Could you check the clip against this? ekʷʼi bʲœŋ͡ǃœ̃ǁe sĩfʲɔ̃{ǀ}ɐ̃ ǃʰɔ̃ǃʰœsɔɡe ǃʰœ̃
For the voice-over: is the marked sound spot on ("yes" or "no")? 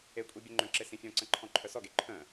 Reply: yes